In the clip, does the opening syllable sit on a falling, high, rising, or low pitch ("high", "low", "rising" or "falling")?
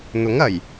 rising